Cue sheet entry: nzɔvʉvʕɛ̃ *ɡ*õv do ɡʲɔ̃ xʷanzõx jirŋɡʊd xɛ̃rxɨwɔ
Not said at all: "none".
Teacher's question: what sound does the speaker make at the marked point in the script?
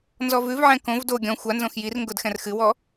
k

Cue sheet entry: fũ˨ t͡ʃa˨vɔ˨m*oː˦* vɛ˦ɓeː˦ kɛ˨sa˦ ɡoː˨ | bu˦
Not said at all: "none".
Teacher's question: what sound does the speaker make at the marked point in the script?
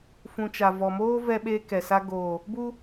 oː˦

